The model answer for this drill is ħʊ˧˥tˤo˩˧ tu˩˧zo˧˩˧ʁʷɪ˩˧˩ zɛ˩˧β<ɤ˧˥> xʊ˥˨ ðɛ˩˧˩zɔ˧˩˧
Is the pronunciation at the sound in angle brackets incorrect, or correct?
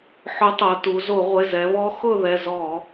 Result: incorrect